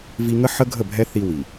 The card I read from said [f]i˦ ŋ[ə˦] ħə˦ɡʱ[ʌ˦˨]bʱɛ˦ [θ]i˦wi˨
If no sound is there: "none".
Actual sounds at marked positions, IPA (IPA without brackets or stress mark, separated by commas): v, ə˦, ə˦˨, θ